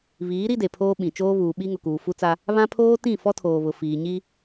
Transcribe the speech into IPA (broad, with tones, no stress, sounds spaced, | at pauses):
β iː˨˦ ɾ i˦ d e˨ pʰ oː˦ ɓ ĩ˨ t͡ʃ oː˦ β uː˨ ɓ i˦ ŋ ʊ˨ k uː˨ f u˦ t͡s a˦ | β ã˦ pʰ oː˦ t ĩ˦˨ f ɔ˦ tʰ oː˨ β ʊ˨ f iː˨ ɲ i˦